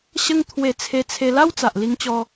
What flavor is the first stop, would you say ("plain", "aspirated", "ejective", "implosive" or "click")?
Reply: aspirated